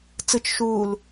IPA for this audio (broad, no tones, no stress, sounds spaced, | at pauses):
t͡s ɯ t͡ʃ ʃ uː l